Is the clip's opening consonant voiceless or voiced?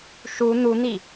voiceless